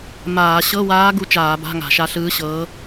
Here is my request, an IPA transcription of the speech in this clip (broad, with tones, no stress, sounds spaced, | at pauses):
m aː˧˩˧ ɕ ɤ˧˥˧ w aː˧˥ ɡ u˧˥˧ t͡ʃ aː˧˩˧ b a̤˧˥˧ ŋ a̤˧˩˧ ʃ a˧˥ ɬ ɯː˧˥ ɕ ɤː˧˥